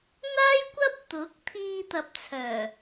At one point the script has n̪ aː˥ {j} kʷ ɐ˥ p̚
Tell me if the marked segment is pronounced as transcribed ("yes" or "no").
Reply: yes